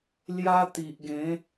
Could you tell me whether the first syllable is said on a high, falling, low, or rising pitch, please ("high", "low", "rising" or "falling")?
high